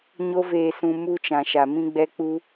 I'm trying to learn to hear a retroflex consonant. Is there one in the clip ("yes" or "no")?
no